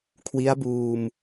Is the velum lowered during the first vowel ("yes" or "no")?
no